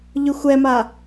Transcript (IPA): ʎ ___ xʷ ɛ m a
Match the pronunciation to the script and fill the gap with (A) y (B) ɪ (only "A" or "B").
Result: A